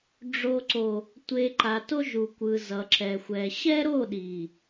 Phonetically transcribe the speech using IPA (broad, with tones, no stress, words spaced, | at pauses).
ɖ͡ʐo˨ǀo˨ | tʷe˨ ǃa˨to˦ʒu˨kʷɯ˨ zʌ˨ǁɛ˨xʷɛ˨ ɕɛ˦ɾo˦˨ɗi˨